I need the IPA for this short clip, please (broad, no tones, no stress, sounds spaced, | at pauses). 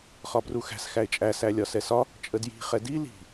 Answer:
χ ɒ b r u x æ̤ s x æ ɪ̯ t͡ʃʼ æ s æ lʲ ɒ s ɛ s ɒ | t͡ʃʼ ə d j i̤ χ ɛ d i l i̤